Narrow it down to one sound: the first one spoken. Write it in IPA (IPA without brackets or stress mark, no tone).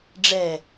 ɖ͡ʐ